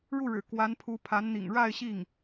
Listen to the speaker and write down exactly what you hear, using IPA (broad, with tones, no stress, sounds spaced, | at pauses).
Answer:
ɻ u˥˩ ɻ ɻ̩˨˩ k w a˧˥ n pʰ u˧˥ pʰ a˧˥ n n̪ ḭ˨˩ ŋ ɻ a˥˧ ɪ̯ ɕ i˥˩ ŋ